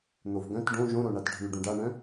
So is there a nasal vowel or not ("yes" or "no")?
yes